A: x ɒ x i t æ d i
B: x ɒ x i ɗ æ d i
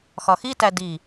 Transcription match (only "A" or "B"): A